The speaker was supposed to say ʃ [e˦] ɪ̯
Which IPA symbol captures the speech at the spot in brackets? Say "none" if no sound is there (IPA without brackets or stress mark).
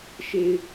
e˨